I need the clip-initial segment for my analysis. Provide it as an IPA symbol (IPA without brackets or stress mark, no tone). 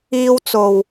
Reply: iː